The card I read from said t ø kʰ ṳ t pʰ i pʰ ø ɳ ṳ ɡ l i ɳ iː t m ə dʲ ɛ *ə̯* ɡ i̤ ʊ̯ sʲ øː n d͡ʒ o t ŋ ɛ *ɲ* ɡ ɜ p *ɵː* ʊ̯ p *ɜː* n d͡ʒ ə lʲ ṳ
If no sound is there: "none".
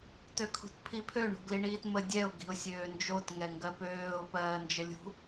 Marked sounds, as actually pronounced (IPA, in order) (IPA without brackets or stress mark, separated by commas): ʊ̯, ŋ, øː, ɜː